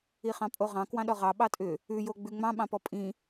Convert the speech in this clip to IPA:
i χ ɑ̃ pʼ o ʁ ɑ̃ k w ɑ̃ ɗ ɔ ʁ ɑ ɓ ɑ tʼ ʏ | ʉ j o ɡ͡b ʉ ŋ͡m ɑ̃ ɓ ɑ̃ p ɔ pʼ ĩ

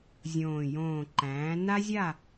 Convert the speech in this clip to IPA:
zʲ õː˧˩ j õː˧˩ ǃ æ̃ː˩˥ n a˥ zʲ a˥˨

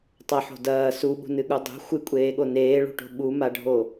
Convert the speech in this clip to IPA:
tˤ ɐ ħ o̤ d ɐː s u ɓ ṳ n ɨ ɠ u dˤ ṳ xʷ ɨ kʷʼ eː ɠ o n eː ɭ ṳ ʈ o̤ ɓ u m a ɖʱ o

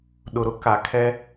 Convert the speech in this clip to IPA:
ɗ ʊ˨ ɾ ʊ˦ k a˨ kʰ ɛ˦

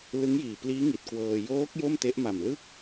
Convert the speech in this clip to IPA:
l ɯ˦˥ ŋ j iː˨˩ p l iː˦˥ ŋ i˨˩ t̚ k w ɤː˧ j oː˦˥ k̚ j o˥˩ m t e˦˥ ʔ m a˨˩ m l ɯ˥˩ k̚

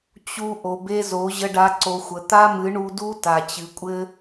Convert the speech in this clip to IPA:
t͡ɕ u˦ ʔ o˨ b e˦ z o˨˦ ʑ ə˧ ɖ a˧ ǀ o˧ xʷ ə˨˦ t̪ a˦ m ɨ˨˦ ɳ u˧ d u˦ t a˨ t͡ɕ ɨ˨ kʷʼ ɘ˧

